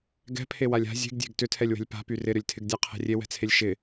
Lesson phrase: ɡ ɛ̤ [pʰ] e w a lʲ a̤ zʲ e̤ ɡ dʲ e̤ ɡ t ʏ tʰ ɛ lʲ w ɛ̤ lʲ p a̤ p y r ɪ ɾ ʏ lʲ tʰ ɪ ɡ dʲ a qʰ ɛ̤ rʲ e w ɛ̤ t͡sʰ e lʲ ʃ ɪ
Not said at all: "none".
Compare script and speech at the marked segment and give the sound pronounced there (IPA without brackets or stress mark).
pʰ